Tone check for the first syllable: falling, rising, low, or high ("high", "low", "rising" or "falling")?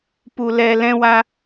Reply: low